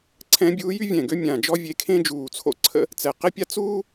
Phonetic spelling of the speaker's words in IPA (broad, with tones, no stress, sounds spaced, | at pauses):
ǀʰ ɛ̃˧˥ bʲ uː˧˥ j y˥ vʲ ɛ̃˧˩ ɡ ø˥ mʲ ã˧˩ d͡ʒ ɔ˥ vʲ e˧˥ kʰ ẽ˥ d͡ʒ uː˧˩ t͡sʰ o̰˥ ǀʰ ə̰˥ | t͡s ɛ˧˩ q ɪ˥ pʲ a˥ t͡s uː˥